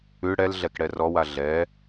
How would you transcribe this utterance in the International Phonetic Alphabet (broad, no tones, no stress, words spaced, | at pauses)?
ʉ ɽɛl ɮɛkɽɛrɔwa ɮɛ